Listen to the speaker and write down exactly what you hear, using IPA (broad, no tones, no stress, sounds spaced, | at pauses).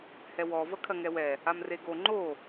h ɛ w ɔ v ɐ kʰ ɐ ŋ ɛ w ɛ | a m r e ɡ o ŋ͡ǃ o